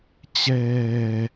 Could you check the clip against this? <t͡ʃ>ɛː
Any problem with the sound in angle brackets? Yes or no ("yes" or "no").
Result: yes